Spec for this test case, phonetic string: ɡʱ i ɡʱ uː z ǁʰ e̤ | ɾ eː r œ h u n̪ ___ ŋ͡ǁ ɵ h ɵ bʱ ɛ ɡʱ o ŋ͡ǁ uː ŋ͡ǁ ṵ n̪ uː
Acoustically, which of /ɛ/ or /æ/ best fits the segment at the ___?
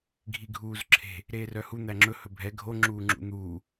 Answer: æ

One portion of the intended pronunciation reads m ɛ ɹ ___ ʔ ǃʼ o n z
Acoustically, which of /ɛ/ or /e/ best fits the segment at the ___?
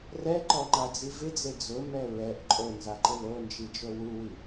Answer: ɛ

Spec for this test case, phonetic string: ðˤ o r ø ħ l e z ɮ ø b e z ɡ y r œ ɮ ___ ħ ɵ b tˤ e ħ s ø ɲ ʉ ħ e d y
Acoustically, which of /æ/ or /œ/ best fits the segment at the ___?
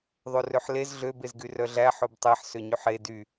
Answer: æ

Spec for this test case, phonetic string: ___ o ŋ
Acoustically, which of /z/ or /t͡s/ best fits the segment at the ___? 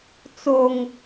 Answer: t͡s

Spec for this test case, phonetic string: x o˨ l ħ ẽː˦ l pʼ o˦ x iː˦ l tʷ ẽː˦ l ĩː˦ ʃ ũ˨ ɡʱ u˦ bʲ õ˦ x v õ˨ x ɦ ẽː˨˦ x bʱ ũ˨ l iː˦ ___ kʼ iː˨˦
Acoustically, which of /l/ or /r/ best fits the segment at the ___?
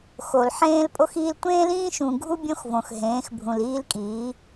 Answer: l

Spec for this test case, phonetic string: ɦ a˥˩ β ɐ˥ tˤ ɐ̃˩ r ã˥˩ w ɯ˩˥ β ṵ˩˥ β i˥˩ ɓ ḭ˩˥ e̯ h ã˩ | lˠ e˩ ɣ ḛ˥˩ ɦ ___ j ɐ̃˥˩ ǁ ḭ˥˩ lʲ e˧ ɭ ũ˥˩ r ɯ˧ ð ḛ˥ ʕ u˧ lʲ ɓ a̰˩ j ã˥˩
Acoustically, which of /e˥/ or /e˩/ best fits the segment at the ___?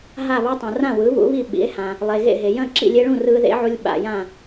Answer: e˩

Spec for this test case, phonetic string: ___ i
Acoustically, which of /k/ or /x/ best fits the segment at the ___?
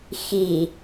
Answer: x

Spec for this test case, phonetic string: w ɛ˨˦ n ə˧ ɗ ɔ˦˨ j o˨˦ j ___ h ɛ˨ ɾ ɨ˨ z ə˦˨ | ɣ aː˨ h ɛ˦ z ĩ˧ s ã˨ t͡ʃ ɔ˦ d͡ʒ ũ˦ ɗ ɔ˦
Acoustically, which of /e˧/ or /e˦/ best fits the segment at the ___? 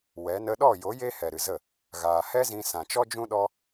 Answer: e˦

